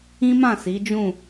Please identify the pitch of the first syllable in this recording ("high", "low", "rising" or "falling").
high